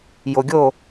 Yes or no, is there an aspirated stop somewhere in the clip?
no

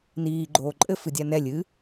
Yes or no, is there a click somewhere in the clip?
yes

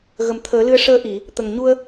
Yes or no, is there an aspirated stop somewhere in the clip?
yes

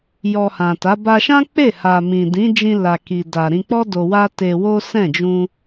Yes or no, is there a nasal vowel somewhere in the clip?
yes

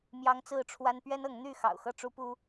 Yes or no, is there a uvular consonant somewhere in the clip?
no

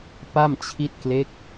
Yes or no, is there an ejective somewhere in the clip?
no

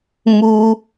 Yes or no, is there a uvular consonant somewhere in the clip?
no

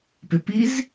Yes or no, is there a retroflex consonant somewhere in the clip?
no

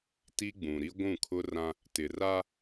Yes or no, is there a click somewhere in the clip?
no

